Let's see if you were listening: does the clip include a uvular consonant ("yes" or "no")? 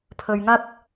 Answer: no